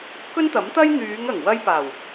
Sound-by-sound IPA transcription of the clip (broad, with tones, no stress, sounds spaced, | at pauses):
k ɵ˥ n t̪ ɐ˨˥ m t̪ ɐ˥ j n̪ yː˨˧ ŋ ɐ˨˩ ŋ w ɐ˧ j p aː˨˩ w